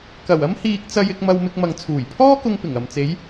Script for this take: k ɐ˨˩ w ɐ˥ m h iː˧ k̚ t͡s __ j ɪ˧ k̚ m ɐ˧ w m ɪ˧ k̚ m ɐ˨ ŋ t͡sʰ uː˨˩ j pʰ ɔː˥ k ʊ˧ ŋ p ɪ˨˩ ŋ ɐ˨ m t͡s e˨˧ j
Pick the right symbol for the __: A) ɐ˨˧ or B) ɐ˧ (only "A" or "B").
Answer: B